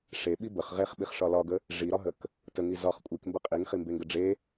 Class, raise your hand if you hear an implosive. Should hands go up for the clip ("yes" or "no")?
yes